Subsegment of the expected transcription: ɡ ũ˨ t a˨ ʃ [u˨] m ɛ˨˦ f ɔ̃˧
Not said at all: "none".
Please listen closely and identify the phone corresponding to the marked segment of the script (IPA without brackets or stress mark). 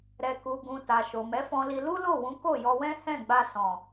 o˨